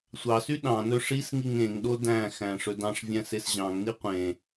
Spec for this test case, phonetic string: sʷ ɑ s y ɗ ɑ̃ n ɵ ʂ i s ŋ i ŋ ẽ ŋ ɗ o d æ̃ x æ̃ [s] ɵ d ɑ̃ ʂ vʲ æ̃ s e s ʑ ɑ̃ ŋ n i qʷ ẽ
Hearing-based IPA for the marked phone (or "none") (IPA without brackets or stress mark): ʂ